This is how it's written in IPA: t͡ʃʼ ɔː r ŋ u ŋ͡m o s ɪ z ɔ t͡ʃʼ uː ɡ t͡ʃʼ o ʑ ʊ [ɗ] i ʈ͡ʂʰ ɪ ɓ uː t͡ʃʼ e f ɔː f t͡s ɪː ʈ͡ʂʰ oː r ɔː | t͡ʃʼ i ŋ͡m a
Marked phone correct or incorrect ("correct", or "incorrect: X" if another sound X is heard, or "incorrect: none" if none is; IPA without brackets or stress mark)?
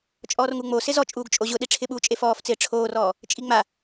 correct